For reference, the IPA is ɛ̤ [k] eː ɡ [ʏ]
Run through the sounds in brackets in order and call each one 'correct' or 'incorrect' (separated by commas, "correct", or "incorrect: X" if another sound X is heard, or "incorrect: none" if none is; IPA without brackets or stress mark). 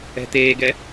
incorrect: t̪, incorrect: ɛ